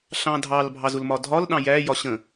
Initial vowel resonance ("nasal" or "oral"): nasal